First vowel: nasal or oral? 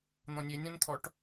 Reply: nasal